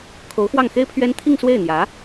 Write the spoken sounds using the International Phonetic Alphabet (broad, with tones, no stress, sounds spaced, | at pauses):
kʰ o˧˥ ʊ̯ x w ɑ˥˩ ŋ x e˥ ɪ̯ pʰ ɥ ɛ˥ n t̪ʰ i˥˧ ŋ s w e˥˩ ɪ̯ n̪ j ä˧˥